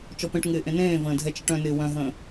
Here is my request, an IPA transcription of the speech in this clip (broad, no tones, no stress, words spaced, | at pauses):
t͡ʃɔpẽʈ ŋɪːʔẽnẽːvə̃ː dʱɛt͡ʃəʈœ̃nɪː wœ̃ɦə̃ː